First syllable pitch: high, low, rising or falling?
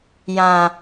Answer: low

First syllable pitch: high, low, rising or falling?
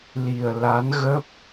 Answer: low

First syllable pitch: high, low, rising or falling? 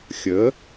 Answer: rising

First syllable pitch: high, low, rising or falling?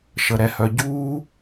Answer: low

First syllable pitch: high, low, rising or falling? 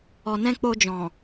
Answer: low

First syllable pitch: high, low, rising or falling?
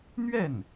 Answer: falling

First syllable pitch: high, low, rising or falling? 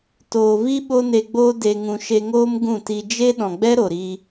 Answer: low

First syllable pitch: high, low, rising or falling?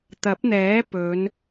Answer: rising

